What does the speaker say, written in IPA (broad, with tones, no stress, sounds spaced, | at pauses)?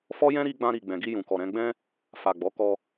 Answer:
f ɔ˦ j ɛ̃˦ ɾ i˦ ɡ͡b ã˧ ɾ i˨ ɡ͡b ɛ̃˨ ɡ i˧ j ũ˨ k ɔ˨ ɾ ɛ̃˧ ɡ͡b ɛ̃˦ | f a˨ ɡ͡b ɔ˨˦ k ɔ˧